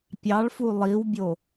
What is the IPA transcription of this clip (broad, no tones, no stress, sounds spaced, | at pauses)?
pʲ ɑ ɭ f u lˠ i w bʲ o